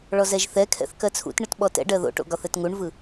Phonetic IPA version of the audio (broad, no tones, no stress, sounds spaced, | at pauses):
ɭ ɔ z ɛ ʒ θ ɛ kʰ ɛ̰ θ k ɜ t͡sʰ ṵ t ɳ ɯ t ɓ ɔ t ɛ̰ ɖ ɜ ð o̰ ʈ o̰ ɡ ɒ θ ɛ t ŋ u ɳ v ɯ